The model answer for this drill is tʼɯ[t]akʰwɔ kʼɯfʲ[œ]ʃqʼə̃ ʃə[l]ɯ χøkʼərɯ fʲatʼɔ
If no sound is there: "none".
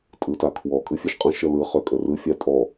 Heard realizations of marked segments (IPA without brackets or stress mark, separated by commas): t, œ, l